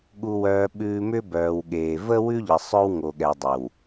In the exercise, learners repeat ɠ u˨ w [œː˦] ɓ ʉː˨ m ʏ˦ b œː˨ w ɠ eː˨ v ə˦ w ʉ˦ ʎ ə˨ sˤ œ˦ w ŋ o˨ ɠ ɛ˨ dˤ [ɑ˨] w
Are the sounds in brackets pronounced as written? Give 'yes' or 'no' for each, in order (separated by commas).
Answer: no, no